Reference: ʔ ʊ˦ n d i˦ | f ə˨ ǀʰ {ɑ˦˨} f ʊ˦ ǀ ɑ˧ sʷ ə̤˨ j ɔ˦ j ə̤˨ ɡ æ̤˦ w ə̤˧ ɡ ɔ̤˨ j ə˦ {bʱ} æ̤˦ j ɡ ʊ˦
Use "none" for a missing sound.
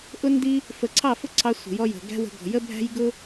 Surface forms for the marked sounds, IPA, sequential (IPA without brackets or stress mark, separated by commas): ɑ˦˨, bʱ